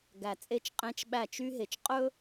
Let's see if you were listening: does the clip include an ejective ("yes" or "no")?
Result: yes